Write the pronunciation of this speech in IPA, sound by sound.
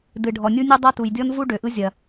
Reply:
d ɨ˩ ɖʱ ɔ˩ nʲ u˧ nʲ ɨ˧ dˤ ɐ˧ t u˩ j dʲ ɔ˧ n v u˧ ɖ ø˩ ʔ ɯ˧ zʲ ɐ˩

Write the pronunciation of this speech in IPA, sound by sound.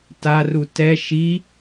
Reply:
t a r u t ɛ ʃ i

